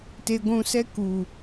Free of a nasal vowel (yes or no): no